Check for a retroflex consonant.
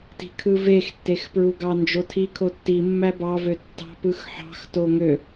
absent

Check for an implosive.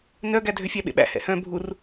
present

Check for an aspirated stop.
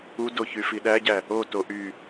absent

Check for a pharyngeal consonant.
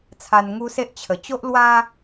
absent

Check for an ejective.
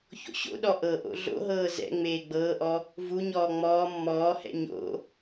absent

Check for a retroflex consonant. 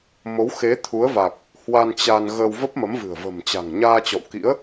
absent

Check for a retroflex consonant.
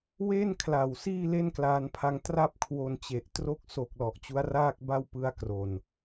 absent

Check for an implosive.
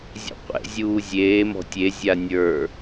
absent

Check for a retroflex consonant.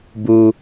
absent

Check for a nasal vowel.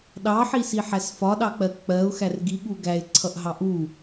absent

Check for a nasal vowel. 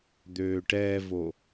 absent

